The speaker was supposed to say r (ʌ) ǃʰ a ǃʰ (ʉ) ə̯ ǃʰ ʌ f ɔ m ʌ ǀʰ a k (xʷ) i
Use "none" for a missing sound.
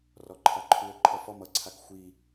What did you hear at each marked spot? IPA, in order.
ɔ, ʉ, xʷ

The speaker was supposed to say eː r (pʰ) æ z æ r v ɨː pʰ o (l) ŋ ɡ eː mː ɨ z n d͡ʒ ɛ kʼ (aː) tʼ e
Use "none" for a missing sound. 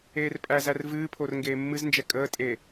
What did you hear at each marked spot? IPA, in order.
pʼ, r, əː

